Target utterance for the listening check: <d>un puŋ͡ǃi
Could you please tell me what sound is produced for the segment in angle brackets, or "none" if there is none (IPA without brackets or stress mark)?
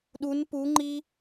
ɗ